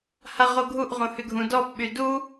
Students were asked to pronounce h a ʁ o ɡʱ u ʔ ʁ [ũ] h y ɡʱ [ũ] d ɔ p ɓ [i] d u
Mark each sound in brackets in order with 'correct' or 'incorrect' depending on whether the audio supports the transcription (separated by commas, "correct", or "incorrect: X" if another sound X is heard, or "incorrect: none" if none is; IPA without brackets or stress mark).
incorrect: õ, correct, incorrect: y